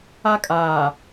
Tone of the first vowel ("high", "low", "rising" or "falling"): high